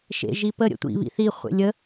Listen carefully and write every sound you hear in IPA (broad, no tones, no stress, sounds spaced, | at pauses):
ʃ ḛ ʒ i p ə ɾʲ ə̰ tʷ ḭ β ḭ θ i χʷ ḛ lʲ ə